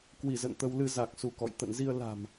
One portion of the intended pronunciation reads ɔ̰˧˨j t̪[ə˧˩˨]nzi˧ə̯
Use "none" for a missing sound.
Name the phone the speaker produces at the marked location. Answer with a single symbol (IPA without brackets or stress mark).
ə̰˧˨